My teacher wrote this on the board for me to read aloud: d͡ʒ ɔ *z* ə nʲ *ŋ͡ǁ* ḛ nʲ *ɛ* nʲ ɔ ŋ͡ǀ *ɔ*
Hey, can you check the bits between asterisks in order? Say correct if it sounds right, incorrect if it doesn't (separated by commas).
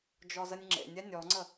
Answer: correct, correct, correct, incorrect